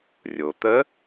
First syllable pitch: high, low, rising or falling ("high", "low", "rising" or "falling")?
low